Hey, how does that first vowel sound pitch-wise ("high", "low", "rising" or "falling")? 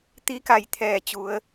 rising